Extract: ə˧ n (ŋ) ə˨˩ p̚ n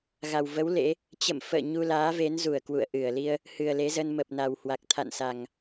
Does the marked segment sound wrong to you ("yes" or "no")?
yes